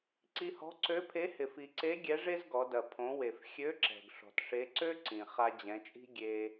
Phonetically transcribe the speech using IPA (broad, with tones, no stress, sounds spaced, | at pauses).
ǀ i˧ h ɔ̤˧˥ ǀ ø˧˥ pʰ e˧˥ h ɪ˩ f i˩ ǀ e˧˥ ɡʲ ɛ˧˥ ʐ e˥ z ɡ ɔ˩˧ d ɐ˩ pʰ õ˩˧ w e˩ f xʲ ø˧˥ ǁ ɛ̤˩ ɡ ʂ ɔ̤˩ t ʂ e˧˥ ǀ ø˥ ǀ ĩ˩ χ a˧ d͡ʑ ɛ̃˩˧ t͡ʃʼ i̤˥ ɡʲ e˧